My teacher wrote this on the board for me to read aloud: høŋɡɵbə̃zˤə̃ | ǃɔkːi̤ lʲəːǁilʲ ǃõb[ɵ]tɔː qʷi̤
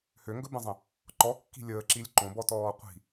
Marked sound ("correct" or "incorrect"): incorrect